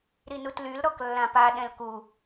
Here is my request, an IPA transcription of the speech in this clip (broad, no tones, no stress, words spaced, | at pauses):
ɾinutlyl ɾɔklːãpa ɗɛ̃lku